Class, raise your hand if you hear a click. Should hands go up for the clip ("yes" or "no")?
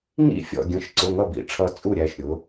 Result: yes